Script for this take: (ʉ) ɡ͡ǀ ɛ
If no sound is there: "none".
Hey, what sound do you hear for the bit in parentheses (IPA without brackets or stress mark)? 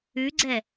ʉ